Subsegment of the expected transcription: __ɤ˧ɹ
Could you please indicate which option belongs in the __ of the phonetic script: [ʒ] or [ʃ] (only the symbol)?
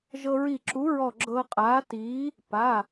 ʒ